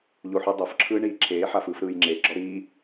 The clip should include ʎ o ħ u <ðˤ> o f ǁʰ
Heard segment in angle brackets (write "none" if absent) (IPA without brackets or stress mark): dˤ